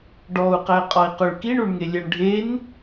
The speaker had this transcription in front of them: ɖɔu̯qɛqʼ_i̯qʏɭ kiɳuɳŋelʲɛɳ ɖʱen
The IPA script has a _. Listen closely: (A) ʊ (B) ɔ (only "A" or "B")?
B